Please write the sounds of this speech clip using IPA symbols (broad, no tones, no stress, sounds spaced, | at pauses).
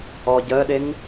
ɔ ɟ əː ɗ e ŋ